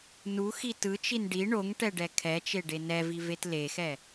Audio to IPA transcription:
n u x i t ɯ t͡ʃ i n ɖ i ɳ o ŋ ʈ ɛ ɖ ɛ kʰ ɛ t͡ʃ e ɖ e n ɛ v i v e t l e x ɛ

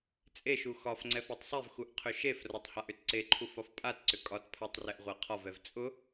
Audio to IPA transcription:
t͡sʼ e ʃ u x ɒ f ŋ͡ǀ ɛ f a tˤ sˤ e v x u ʔ qʰ ʏ ʃ e f r ɒ tˤ h a ʔ ʏ t ǀ e ǃʰ u f ɒ f pʼ a t ǀ ʏ kʼ ɒ t pʰ a tˤ r ɛ ʔ ʁʷ a qʰ ɒ v ɛ v t͡sʼ ʊ

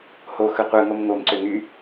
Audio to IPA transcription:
h o x ɯ qʷ ɯ ŋ o m ŋ o m ǀ ø ŋ y

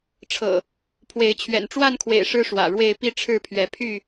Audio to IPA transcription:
ʈ͡ʂʰ ɤ̰˨˩ | pʰ w e˨˦ ɪ̯ t͡ɕʰ ɥ ɛ̰˨˩ n ʈ͡ʂ w a˥˨ n kʰ w ḛ˨˩ ɪ̯ ʂ ɻ̩˦ ʂ w ä̰˨˩ ɻ w e˥˨ ɪ̯ p i˥˨ ʈ͡ʂʰ ɻ̩˥˨ pʰ ɥ ɛ˨˦ pʰ y˥˨

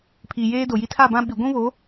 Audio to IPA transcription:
pʰ iː˨ j eː˦ d o˨ j i˦ tʰ a˦˨ b ã˦ ɓ i˨ ɡʷ ũ˦ β o˨˦

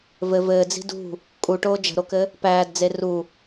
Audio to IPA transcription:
v ɘ v ɘː d͡z i̤ d ṳ | kʼ u ʈ oː d͡ʒ ə̤ ɾ o k ɘ | p æː d d͡z e r u

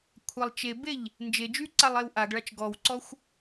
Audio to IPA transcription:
kʷʰ a lˠ t͡ʃ e b e ʎ | n d͡ʒ e d͡ʒ y ǀ a lˠ e w ʔ a ɡ ɭ a t͡ʃ ɡ ɔ w ǀ ɔ xʷ

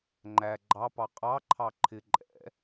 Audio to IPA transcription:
ŋ͡ǃ æ ɡ͡ǃ ɑ p ɑ qʼ ɑ ǃʰ ɑ ǃʰ ɪ ǃʼ ɛ̰

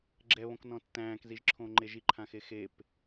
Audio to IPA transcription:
ɡ͡ǁ ɛ β õ k n ɔ̃ tː æ̃ː k z i ʒ ǁʰ õː ŋ͡ǃ e ʒ i ǃʰ ã x e x e p

